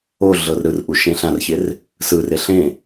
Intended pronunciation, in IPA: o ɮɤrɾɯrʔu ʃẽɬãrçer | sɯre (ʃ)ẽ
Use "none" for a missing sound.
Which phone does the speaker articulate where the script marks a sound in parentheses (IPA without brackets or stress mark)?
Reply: ɬ